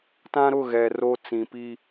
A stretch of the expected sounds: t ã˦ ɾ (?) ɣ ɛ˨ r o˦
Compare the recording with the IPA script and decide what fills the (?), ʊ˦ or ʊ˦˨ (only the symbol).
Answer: ʊ˦˨